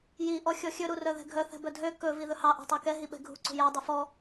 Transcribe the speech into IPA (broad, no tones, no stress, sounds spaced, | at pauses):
j i ʔ ɔ xʲ ɔ xʲ ɵ ɾ u r œ ð ɛ̤ ɡʱ œ θ ɛ̤ b œ dʱ ø k ɵ v i ð ɵ h ɑ ʔ ɛ̤ tˤ o k ɛ ɦ i ɓ ɛ̤ ɡʱ ṳ ǀ ṳ j æ dˤ ʉ f ɔ